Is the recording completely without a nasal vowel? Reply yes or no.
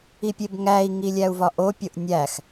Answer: yes